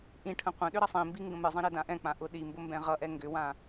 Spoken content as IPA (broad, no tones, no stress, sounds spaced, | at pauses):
ʔ ĩ ʈʰ ə̃ qʷ ə̃ ɗ ʏ ɾ ʌ sˤ ĩ m b i ŋ ɡ ə̃ m ɨ zˤ ĩ ɾ ɛ d ã ʔ ɛ̃ k͡p ã ʔ ʊ ɗ i m b ʊ m b ɛ̃ ʁ ʌ ʔ ɛ ŋ ɡ ʏ w ã